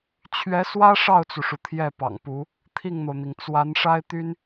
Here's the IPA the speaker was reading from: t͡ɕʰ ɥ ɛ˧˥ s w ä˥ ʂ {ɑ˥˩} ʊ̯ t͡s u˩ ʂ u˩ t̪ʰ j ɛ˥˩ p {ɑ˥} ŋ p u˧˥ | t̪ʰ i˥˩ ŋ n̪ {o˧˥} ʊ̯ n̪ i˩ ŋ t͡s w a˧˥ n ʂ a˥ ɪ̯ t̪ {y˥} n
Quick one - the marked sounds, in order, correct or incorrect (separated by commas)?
correct, incorrect, incorrect, correct